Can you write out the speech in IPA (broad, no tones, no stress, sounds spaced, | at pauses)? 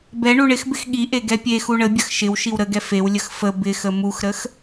b ɛ ɳ u ɳ ɪ x b ɪ x ɠ i ʔ e ɡ ɛ pʲ e x u ɳ ə bʲ ə x ʃ ɪ w ʃ i w ɾ ə ɡ ɛ f e w lʲ ə x f ə b ɪ x ə m u x ɾ ə x